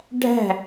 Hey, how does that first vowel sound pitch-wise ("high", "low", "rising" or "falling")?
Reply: falling